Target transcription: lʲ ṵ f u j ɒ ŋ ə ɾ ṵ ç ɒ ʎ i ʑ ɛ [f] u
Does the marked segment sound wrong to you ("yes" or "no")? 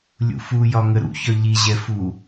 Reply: no